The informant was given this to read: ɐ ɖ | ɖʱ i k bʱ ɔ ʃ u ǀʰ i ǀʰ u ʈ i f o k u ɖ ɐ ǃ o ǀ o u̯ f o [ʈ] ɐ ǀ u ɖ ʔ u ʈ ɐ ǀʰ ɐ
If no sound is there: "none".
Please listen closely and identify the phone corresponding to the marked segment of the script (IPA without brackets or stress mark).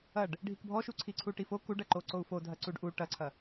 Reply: dʱ